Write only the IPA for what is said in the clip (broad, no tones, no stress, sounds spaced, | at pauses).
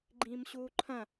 ɡ͡ǃ ĩː m ɕ uː ǃʰ ɐ̃